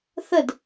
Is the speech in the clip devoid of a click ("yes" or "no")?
yes